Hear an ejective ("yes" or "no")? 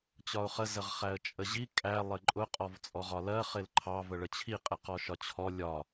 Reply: yes